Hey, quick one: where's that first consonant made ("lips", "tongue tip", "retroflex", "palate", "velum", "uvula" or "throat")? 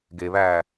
velum